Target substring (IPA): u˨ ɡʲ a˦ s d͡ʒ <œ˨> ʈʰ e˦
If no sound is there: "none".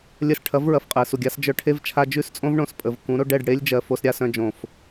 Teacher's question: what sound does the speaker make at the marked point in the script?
œ˧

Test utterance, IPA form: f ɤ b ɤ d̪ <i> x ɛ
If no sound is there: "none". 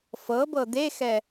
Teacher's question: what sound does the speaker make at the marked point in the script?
e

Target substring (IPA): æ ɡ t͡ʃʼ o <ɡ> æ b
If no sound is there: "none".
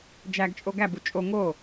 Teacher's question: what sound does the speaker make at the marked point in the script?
ɡ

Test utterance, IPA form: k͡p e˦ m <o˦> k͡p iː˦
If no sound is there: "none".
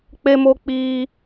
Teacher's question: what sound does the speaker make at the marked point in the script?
o˦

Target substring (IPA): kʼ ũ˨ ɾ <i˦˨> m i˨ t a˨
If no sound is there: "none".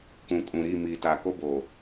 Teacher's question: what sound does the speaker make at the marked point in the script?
i˦˨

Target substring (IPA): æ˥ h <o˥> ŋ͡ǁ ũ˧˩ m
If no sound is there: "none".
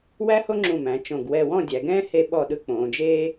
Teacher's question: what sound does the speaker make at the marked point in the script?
o˥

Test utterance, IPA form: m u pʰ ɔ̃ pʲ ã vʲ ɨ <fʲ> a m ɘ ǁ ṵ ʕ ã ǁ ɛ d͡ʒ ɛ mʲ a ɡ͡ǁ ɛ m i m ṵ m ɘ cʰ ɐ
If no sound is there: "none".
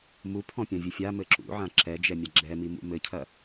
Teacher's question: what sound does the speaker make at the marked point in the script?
fʲ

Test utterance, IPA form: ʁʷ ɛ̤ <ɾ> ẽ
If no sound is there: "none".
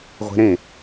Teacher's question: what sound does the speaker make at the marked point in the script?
ɾ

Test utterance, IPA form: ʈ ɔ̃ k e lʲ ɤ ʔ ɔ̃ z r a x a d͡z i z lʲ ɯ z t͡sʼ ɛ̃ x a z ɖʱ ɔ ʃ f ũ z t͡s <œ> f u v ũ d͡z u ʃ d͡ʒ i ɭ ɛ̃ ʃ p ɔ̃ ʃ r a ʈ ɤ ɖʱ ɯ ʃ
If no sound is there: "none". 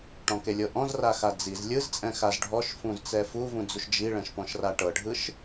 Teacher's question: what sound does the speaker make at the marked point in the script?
ɛ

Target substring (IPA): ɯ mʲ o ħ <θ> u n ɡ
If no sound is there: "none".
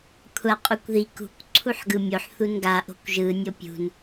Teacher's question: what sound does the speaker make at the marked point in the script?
θ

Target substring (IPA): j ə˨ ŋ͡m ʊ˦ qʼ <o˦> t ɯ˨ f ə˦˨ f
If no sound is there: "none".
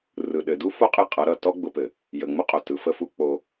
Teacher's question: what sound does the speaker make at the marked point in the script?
o˨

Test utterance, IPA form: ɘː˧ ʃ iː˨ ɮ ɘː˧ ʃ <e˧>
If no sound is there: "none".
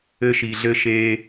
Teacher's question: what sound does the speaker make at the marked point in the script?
eː˧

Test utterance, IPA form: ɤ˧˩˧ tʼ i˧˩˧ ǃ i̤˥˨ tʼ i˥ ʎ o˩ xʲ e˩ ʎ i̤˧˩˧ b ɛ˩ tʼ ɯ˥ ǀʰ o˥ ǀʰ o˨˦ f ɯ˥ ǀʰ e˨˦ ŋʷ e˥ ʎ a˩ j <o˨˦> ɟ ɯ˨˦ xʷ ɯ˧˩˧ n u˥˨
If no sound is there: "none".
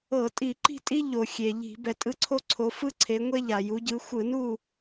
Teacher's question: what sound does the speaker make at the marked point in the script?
u˨˦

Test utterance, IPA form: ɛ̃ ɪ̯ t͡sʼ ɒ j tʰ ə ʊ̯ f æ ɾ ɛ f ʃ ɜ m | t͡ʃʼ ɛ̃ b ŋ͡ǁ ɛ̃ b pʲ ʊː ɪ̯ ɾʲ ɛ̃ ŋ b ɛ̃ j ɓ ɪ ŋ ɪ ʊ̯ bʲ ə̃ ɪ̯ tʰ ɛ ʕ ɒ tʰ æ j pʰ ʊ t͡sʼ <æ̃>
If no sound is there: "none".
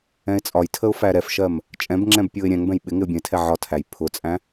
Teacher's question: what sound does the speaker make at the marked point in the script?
æ̃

